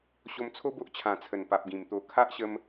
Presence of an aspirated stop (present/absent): present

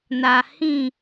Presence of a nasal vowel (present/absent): present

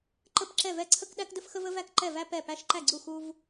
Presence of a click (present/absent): present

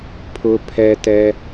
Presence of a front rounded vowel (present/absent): absent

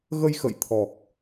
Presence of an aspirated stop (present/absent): present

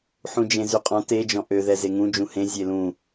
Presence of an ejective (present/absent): present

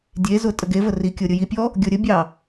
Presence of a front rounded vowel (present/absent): absent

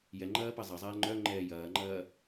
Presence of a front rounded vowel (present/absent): present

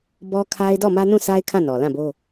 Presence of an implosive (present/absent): absent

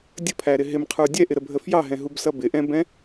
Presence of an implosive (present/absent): absent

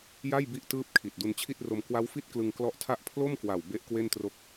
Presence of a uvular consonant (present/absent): absent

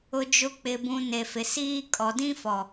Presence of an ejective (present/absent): present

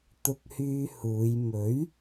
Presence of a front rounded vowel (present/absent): present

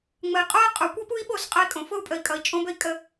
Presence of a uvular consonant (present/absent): present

